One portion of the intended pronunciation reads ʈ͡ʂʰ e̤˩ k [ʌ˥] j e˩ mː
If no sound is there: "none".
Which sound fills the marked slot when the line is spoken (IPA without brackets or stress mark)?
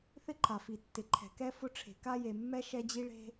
a˥